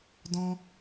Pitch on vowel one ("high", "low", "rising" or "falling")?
high